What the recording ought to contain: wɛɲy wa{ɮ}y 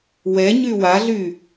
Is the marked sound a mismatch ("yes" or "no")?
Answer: no